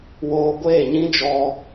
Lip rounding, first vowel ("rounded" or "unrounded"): rounded